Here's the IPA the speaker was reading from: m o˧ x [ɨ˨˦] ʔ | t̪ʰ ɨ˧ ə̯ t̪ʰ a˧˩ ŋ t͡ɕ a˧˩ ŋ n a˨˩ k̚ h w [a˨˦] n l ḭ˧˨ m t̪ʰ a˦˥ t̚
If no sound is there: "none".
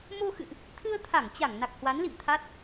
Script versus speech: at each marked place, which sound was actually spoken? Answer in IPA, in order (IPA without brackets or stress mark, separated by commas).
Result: ɨ̰˧˨, a˨˦